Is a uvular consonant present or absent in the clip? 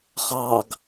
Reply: present